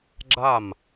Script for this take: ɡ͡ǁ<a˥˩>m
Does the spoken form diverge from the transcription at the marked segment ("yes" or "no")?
no